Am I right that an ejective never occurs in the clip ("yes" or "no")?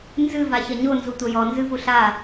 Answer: yes